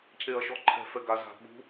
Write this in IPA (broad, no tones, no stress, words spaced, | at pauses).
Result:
cʰeɐ̯ʃɔǃʰɛ̤ fɛɡa za̤ ɓṳ